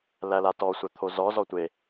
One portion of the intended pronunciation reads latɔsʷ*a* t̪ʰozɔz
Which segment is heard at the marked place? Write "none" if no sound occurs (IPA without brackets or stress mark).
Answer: æ